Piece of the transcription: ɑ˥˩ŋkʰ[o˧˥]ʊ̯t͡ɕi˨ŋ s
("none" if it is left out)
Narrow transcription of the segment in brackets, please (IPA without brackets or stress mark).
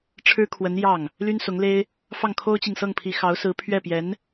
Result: o˥